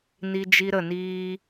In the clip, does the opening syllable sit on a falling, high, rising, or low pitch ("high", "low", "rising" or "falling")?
high